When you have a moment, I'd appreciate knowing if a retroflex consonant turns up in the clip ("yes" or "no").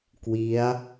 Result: no